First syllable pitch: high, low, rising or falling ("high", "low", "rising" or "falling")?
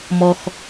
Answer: low